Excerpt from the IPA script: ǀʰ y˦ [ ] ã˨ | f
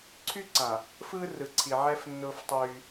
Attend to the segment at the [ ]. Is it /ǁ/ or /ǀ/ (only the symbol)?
ǀ